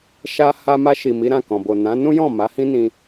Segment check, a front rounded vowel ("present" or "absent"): absent